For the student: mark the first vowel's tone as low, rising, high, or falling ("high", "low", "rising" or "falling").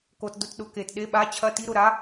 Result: low